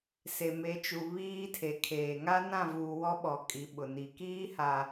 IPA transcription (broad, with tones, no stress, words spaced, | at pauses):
se˨me˨˦t͡ʃu˨ βiː˦tʰe˨kʰeː˨ ŋa˦nã˦˨vuː˨ wɔ˦ɓɔ˨ kʼi˨˦ɓʊ˨ni˨ kiː˦ ha˨